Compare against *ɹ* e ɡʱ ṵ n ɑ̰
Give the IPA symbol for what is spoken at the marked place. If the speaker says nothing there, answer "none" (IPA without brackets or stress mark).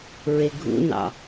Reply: ɹ